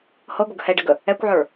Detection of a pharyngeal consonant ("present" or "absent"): present